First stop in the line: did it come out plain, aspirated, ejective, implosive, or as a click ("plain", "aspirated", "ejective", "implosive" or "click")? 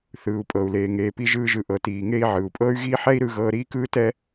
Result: ejective